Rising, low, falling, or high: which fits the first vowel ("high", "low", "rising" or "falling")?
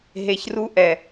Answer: low